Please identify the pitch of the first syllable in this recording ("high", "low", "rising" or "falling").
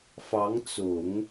rising